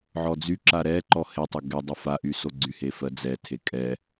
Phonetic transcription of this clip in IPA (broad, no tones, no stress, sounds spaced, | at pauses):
ʕ ɔ d͡z y ǁ a ɾ ɛ ǃ ɔ h e tˤ ə ɡ ɛ dˤ ə f a ʔ y s o ɡ͡ǀ y h e f ɜ d͡z ɛ tʰ e kʼ ɛ